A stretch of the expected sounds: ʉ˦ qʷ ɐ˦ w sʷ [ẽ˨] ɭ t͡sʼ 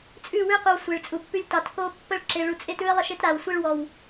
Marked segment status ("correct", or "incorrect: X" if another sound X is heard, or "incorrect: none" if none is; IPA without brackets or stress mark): incorrect: e˨